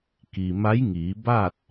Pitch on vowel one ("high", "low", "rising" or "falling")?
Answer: low